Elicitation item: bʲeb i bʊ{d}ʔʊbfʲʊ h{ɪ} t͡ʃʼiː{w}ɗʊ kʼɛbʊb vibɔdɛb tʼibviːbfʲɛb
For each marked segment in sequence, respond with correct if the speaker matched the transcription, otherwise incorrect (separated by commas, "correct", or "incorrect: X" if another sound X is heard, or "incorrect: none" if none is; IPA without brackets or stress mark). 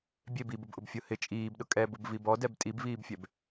incorrect: b, correct, incorrect: b